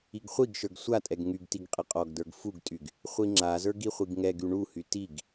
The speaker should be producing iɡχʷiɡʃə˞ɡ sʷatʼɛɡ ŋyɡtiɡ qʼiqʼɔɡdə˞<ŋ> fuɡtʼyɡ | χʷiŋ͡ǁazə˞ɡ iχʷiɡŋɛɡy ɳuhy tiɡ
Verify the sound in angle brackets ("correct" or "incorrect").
incorrect